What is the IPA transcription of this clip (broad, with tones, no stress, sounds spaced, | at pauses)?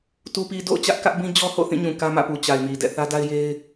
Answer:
t u˨ p i˨ d o̰˦˨ ʊ̯ t͡ɕ ä˦ ʔ k ä˦ ʔ b ĩ˦ d͡ʑ ɔ˦ h o̰˦˨ θ ĩ˦˨ ɲ ũ˨ k ä˦ m ä̰˦˨ p u˨ t͡ɕ a˨ ɪ̯ m i˨ d ɛ̰˦˨ θ ä˦ d a˦ ɪ̯ j e˦ ɪ̯